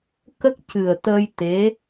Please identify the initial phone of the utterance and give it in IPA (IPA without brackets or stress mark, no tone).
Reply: k